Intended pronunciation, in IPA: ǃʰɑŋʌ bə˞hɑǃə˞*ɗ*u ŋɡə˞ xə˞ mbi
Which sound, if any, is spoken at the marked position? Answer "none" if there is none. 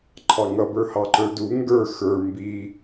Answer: d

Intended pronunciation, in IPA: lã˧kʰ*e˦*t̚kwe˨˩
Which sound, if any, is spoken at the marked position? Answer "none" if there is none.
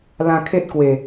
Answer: e˦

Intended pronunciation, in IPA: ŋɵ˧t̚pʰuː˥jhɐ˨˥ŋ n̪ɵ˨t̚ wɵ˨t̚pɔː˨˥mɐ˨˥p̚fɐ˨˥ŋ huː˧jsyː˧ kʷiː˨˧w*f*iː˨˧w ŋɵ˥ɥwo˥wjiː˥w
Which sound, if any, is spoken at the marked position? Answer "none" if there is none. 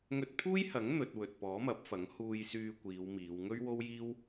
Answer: m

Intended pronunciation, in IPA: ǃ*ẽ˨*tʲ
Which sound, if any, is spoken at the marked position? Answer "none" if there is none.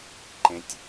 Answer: ẽ˨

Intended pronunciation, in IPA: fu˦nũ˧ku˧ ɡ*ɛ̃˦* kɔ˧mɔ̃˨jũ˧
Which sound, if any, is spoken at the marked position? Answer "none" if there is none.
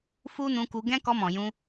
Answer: ɛ̃˦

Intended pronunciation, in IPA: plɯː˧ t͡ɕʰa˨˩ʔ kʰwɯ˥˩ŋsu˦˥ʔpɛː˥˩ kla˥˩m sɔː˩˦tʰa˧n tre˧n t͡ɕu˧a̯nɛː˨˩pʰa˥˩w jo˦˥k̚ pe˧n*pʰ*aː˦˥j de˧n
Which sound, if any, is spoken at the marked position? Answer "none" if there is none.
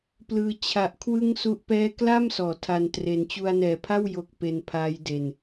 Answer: pʰ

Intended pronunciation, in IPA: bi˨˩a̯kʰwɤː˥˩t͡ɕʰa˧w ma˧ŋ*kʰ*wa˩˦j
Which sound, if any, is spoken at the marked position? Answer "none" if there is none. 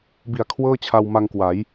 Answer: k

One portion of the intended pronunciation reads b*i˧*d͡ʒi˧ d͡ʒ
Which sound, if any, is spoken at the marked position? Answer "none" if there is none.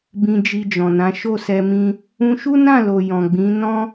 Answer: ĩ˧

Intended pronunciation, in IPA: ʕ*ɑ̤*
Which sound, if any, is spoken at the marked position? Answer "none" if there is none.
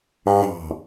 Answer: ɑ̤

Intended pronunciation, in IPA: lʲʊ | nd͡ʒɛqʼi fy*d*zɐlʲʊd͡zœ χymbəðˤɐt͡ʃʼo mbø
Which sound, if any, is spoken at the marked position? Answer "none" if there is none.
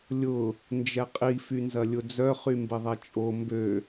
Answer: n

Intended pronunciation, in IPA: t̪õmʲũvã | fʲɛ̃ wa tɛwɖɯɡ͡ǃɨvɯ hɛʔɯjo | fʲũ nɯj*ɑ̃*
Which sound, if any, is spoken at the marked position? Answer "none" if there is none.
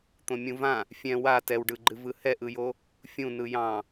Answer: ɑ̃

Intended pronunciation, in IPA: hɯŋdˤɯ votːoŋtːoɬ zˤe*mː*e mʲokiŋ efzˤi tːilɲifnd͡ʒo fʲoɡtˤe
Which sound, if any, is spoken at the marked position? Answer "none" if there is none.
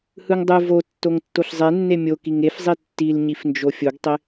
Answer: nː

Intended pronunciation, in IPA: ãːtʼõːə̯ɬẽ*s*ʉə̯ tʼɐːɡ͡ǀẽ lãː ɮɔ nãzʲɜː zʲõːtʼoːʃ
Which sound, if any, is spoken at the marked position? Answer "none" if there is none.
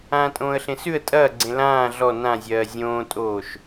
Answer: s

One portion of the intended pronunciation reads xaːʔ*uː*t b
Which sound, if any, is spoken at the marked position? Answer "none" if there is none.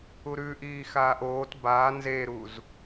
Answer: oː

